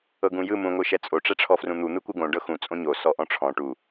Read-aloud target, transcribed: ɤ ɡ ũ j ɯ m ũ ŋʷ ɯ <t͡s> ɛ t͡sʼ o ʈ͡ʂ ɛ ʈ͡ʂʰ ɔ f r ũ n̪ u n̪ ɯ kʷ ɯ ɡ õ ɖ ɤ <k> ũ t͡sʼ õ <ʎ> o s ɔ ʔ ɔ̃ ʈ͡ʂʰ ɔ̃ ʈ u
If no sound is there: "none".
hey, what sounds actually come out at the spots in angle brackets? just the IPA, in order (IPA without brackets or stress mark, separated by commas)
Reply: ʃ, x, ɲ